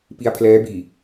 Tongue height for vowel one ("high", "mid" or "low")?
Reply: high